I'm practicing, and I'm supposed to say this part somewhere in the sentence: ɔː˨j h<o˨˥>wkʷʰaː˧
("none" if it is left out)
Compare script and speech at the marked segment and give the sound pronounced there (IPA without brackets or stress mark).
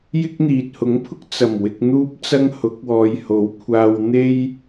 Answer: o˨˥